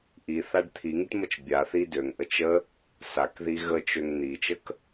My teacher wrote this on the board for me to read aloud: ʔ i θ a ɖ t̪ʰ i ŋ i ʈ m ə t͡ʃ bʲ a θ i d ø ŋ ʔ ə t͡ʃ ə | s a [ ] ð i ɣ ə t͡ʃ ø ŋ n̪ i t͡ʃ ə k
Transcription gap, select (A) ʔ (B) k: B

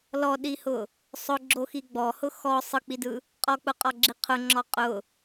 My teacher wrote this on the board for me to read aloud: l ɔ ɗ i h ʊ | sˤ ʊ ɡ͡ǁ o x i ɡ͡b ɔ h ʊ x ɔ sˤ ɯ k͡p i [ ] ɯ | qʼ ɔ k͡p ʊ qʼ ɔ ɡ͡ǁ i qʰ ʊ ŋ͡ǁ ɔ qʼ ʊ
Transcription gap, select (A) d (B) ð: A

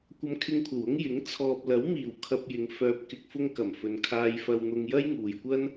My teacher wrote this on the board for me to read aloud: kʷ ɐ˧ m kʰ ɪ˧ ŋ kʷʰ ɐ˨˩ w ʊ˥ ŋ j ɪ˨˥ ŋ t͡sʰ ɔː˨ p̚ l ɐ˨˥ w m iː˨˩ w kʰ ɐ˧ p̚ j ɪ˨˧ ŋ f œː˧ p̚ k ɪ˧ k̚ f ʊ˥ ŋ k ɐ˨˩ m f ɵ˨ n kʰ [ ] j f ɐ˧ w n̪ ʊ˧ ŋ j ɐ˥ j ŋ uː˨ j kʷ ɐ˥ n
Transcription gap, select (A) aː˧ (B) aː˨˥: A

